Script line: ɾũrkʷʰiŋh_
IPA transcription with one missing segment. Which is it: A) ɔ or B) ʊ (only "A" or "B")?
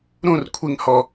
A